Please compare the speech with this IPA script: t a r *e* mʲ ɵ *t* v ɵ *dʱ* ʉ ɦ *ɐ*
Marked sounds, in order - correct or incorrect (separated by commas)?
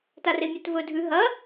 correct, correct, correct, correct